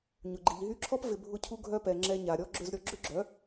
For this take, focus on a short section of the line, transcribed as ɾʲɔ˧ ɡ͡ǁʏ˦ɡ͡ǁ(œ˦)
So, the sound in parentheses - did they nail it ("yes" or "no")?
no